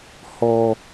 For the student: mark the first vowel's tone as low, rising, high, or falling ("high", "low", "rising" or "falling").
low